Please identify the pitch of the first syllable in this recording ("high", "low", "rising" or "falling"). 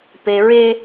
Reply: high